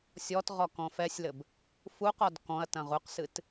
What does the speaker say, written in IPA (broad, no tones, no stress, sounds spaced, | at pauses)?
sʲ ɔ t ʁ ɔ k ɔ̃ f ɛ sʲ l ɘ b | f u q ɔ d k ɔ̃ ɐ̯ t ɐ̃ ʁ u q s ɨ t